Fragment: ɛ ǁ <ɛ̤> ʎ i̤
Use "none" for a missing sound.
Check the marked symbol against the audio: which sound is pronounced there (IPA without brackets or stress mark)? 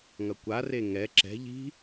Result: ɛ̤